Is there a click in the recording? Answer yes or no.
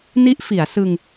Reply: no